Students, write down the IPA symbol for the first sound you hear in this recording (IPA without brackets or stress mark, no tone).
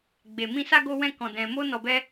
ɡ͡b